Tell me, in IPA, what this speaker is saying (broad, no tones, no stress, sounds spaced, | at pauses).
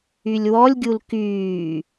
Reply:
y lʲ w ɔ lʲ ɡʲ u l k yː